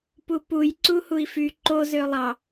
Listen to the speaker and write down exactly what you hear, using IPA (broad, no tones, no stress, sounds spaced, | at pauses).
p u p u j ǀ u h u i̯ f y ǃ o z ø lˠ ɑ